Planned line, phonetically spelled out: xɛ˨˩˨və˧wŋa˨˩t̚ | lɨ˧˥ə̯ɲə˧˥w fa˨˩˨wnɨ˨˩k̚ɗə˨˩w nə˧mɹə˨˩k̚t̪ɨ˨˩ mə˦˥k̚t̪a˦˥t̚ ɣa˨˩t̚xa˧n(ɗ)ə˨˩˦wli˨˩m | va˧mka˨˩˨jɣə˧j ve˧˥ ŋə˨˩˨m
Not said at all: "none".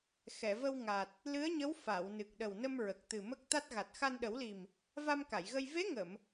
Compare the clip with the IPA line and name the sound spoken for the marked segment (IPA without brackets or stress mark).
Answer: ɗ